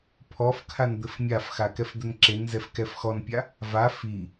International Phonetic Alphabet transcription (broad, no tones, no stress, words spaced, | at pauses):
pʰɔfkʰan d̪ɘfmʲafxa kɛfd̪ɘnǁenzɛf kɛfxɔnpʲa | va fi